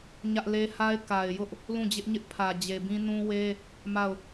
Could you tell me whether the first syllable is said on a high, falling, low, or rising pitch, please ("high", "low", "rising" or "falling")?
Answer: high